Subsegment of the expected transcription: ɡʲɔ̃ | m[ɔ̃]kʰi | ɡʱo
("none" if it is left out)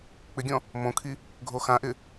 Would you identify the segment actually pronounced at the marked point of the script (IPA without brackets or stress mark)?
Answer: õ